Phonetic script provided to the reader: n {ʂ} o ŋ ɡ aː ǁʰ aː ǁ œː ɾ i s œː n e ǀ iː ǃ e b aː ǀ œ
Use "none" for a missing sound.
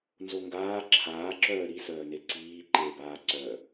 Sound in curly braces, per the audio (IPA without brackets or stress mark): z